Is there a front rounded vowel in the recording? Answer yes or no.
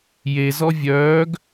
yes